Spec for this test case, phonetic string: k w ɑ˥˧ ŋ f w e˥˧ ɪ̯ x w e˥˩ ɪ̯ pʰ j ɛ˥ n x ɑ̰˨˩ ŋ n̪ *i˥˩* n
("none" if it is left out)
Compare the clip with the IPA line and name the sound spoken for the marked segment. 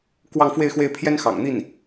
i˥˩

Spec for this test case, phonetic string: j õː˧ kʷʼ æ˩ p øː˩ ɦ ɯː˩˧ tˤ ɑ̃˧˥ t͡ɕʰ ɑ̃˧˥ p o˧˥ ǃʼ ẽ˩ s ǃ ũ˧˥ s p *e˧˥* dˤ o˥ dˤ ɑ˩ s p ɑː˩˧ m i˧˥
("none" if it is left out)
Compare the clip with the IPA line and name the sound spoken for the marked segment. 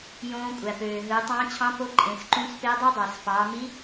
e˧˥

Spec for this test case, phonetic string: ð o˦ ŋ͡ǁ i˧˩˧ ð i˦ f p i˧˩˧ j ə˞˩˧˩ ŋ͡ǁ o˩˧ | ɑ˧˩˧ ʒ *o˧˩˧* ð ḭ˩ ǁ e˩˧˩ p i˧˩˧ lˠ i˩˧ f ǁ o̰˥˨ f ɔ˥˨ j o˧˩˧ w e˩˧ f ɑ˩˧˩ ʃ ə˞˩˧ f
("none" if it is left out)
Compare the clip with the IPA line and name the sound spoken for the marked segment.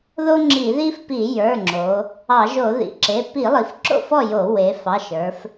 o˧˩˧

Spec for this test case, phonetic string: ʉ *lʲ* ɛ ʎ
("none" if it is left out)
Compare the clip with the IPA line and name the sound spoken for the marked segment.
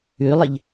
lˠ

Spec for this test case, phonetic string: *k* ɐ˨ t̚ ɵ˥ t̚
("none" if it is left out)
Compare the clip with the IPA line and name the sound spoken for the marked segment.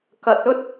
k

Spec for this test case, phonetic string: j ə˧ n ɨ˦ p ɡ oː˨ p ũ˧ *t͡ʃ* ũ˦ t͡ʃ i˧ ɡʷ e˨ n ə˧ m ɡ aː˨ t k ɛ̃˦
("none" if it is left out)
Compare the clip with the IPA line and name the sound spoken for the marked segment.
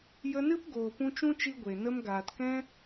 t͡ʃ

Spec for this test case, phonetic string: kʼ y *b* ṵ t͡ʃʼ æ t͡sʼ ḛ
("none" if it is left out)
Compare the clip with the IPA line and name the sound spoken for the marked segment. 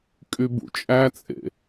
b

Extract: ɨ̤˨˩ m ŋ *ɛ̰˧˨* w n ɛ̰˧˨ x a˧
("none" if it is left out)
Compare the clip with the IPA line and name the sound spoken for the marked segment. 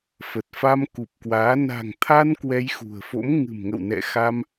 ə̰˧˨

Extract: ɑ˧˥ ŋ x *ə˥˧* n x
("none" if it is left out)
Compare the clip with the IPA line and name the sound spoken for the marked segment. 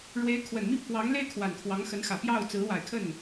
ə˧˥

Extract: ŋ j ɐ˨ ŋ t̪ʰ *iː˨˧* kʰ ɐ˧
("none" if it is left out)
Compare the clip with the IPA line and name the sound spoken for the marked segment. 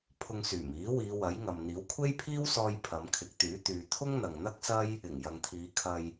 iː˨˧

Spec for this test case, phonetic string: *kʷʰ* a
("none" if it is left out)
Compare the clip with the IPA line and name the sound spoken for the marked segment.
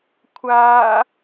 kʷʰ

